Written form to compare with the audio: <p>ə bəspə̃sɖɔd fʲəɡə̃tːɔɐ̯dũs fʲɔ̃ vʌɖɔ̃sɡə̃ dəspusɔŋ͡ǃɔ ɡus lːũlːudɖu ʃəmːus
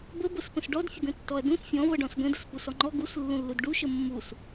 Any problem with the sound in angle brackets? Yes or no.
yes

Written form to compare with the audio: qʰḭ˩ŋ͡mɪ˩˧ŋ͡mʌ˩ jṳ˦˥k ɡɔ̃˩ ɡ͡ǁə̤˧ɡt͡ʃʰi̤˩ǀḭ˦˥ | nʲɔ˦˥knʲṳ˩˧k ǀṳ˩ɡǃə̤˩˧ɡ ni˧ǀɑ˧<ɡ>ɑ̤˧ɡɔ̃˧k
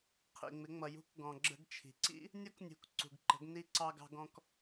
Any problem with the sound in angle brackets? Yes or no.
no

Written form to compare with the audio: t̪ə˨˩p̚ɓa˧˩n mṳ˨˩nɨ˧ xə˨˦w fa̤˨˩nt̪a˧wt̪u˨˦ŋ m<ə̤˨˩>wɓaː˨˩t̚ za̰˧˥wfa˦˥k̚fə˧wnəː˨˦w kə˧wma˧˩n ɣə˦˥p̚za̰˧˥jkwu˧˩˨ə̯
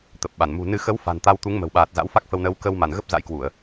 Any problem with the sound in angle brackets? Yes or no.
no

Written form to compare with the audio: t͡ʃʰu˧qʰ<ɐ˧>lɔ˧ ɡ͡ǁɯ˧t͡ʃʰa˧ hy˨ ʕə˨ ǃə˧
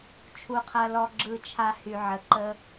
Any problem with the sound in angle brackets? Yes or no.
no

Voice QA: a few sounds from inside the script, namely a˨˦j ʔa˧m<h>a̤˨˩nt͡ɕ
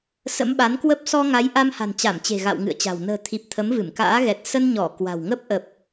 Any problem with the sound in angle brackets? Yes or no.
no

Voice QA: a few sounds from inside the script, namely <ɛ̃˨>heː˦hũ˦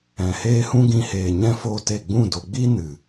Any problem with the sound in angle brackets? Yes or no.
no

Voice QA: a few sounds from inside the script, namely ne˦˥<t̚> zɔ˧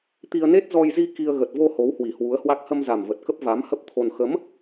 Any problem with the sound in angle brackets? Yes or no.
no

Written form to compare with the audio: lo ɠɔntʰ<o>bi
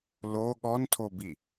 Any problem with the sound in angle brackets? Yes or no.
no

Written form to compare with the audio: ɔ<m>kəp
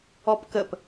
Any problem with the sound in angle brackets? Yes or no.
yes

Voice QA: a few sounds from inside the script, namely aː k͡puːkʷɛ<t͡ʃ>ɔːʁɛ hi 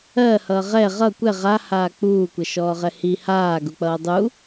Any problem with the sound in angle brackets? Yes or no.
yes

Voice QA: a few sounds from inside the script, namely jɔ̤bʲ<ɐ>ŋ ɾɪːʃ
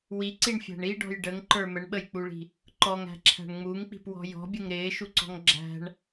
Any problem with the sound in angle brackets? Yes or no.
yes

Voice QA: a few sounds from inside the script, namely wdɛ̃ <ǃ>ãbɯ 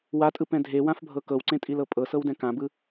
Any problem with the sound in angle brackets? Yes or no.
yes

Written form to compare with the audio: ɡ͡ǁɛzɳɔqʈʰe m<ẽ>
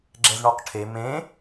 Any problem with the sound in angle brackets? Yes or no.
no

